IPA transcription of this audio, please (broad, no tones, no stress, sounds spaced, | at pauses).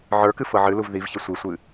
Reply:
ʕ ə˞ k ɨ f ɤ ʕ ɨ l u v ð i v ç ə sʷ i sʷ ɨ